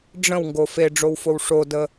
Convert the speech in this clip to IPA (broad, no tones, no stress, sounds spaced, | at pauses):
ɖ͡ʐ ə̃ w ŋ ɡ o f e ɖ͡ʐ o w f o w ʂ o d ə